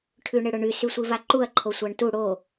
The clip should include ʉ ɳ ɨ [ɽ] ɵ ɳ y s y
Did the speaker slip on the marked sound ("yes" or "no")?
no